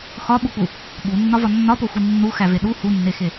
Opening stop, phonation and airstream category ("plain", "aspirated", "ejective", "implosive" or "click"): implosive